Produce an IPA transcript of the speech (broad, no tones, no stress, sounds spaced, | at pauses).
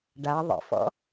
ɖ a ðˤ ə̰ f ɔ̰